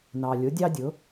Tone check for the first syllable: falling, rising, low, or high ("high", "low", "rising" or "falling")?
low